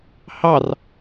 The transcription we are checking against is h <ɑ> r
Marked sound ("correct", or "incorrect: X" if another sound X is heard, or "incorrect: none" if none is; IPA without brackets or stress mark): correct